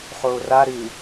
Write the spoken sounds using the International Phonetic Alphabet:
χoːra ɾɨ

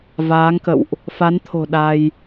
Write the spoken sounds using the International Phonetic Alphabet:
vaː˨˦ŋkə̰˧˨wʔ | fa˨˦nt̪ʰo̤˨˩ ɗa˧j

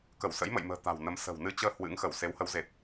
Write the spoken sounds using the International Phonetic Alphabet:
kə˧˩wsə̰˧˥jmə̰˧˨jmə̤ː˨˩ t̪a̤˨˩wnə˨˦m sə̤˨˩w nɨ˧t͡ɕəː˧ hwɨ̰˧˥ŋxə˧˩w se˨˦whə˨˦wze˨˩t̚

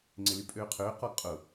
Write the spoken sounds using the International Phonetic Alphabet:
ŋ͡ǀɪlypʼøːqʰøː qɔɡqʼʊ

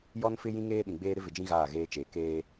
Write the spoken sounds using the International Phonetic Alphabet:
jɔ˦nfɪ˦ jĩ˦ŋeː˦ɗĩ˨ɡ͡beː˦ ɾɪ˦vɪ˨d͡ʒĩ˦ ɣaː˦˨ɣeː˦t͡ʃeː˨ keː˦

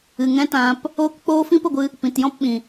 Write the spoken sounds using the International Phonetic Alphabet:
ɨ˨ ŋɛ̃˦tã˧p | oː˧k k͡poː˦ fĩ˦pə˦˨ɡʷɨ˧ | pĩ˨tjɔ̃˦˨p ɓĩ˨

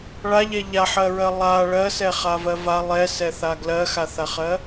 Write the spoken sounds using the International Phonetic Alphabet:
ɭaʎɛ ʎaħɜɹɜ lˠa ɭɜsɛχavɜ va lˠɛsɛθa ɡlɜxaθaχɜ

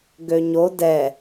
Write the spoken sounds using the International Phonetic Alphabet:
ɡøɲo dɛ

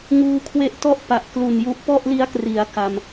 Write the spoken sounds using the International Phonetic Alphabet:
ŋuː˧kʰwe˦˥ʔtɔ˥˩ʔ pa˨˩ʔklu˨˩n ju˦˥ʔ pɔ˥˩ʔli˦˥a̯kri˩˦a̯ ka˧m

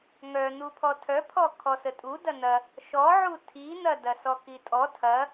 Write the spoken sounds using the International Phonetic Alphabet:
ŋœn̪upʰɔ tʰœpʰɔ kʰɔsətʼu dɐn̪ɐ | ʃɔʕu tʰin̪ɐdɐ sɔkitʼɔ tʰɐ

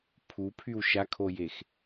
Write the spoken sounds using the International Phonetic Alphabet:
pʰupʰyw ʃakʰojex

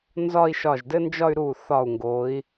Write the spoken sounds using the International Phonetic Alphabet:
nzɒ˥˧i̯ʃɒ˧˩ʒdɘ˥nd͡ʒɒ˥˧y̯ ɾu˧˩ θɒ˧˩u̯ŋɡo˩˧i̯

